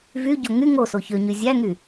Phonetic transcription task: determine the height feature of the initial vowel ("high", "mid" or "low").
high